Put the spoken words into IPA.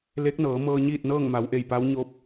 l e˧˥ k̚ n ɤː˩˧ m ɤː˧ ɲ iː˥˨ t̚ n ɤː˥˨ ŋ m a˩˧ w ʔ e˧˩ j p a˧˥ w ɲ o˧˥ p̚

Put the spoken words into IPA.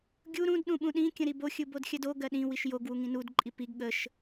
ɡʲ u ɾ ũ d ɗ ũ ɓ ũ ɗ ĩ kʲ ə̃ ɾ i b o xʲ ɯ b o d xʲ ɜ d o ɡ ɜ ɗ ĩ w i ʃ j o ɡ w u ŋ ĩ n u d ǃʼ i p i ɡ ɠ ə ʃ

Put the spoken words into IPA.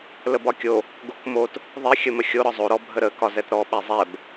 l ə b ɒ kʲ o | ɡ o k m o t | ðˤ i xʲ ə m ə xʲ o ɾ ɒ zˤ o ɾ ɔ bʱ ə ɾ ə k ɒ z ɛ t ɾ ɔ ɓ ɛ zˤ ɛ b

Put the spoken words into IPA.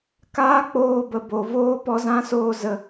k aː˦ k͡p oː˧ b ə˨ b o˨ v oː˦ p ɔ˧ z ã˦ s oː˧ z ə˨

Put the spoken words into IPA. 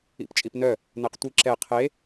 ḭ p t͡ʃʼ i p n œ | n ɛ q tʷ i ǁ ɛ qʰ e

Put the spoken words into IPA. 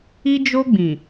i˦ d͡ʒ o˦ ɡ͡b ĩ˨

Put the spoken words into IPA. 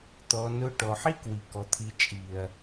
t̪ ɔ˨ n ʊ˧ ʈ ɔ˨ ħ i˦ k w i˨ k ɔ˨ t̪ʰ i˨ t͡ʃʼ i˨ ɐ̯

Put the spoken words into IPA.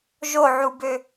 ʒ o ʕ u b ø

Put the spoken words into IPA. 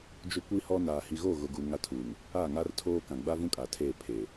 d͡ʒ o˦ kʷ i˦ h ɔ˦ n aː˨ h i˨ ɣ o˦˨ ɣ ʊ˨ ɡ u˨ ŋ a˦ tʰ uː˨ ŋ | a˦˨ ŋ a˦ r tʰ oː˦ k ã˨ ɡ͡b a˦ v ũ˦ kʼ a˨ tʰ eː˦˨ pʰ eː˨

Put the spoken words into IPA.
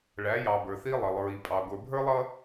ɭ æ˨˦ j ɑ˨ b ə˞˨ θ i˦ lˠ ʌ˨ lˠ ɹ i˨ pʼ ɑ˨ ɡʷ ə˞˨ bʱ ə˞˦ lˠ ʌ˦

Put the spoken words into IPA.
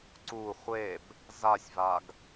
ǀ u χʷ e b | z a sʲ v a ɡ

